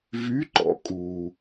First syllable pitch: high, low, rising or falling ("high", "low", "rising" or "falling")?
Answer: rising